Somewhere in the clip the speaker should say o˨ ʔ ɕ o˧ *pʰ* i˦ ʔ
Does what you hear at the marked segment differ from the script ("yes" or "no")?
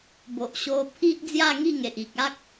no